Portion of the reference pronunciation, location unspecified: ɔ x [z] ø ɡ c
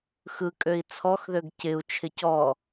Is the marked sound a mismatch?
yes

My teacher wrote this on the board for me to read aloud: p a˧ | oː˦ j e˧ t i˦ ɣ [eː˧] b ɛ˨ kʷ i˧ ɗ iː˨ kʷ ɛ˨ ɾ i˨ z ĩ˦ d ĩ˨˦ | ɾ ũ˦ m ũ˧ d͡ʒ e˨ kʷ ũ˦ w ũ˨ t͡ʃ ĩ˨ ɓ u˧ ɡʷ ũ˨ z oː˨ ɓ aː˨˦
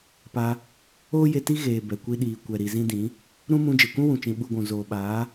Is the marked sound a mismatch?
yes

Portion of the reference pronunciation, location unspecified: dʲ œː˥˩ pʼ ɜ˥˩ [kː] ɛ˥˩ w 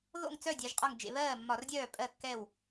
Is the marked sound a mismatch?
no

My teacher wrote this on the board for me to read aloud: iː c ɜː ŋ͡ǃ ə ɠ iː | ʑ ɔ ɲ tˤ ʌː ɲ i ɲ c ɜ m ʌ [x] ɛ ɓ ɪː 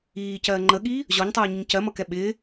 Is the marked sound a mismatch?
yes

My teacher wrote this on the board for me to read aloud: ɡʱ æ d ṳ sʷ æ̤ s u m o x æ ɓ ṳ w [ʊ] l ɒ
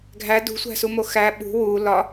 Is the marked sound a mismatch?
yes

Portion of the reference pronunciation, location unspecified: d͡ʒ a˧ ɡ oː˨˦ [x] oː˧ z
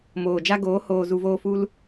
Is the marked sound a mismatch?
yes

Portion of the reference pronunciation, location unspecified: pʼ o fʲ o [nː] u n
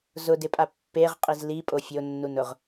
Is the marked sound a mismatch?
no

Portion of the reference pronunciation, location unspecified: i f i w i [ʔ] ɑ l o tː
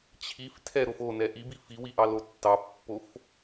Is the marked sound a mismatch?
no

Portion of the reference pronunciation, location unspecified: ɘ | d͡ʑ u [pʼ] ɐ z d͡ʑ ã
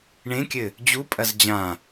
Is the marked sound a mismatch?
no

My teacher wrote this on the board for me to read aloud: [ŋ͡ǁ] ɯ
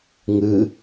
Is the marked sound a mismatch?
yes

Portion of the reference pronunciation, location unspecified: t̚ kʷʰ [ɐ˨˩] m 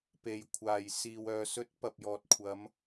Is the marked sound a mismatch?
yes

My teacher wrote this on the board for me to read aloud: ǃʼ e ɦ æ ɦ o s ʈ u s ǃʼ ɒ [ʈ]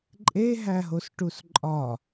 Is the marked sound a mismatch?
yes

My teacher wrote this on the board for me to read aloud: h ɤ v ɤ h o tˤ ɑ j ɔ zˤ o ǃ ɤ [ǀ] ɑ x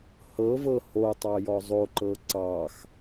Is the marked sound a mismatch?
no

